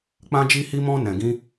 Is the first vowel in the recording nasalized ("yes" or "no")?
yes